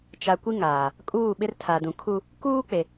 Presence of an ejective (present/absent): present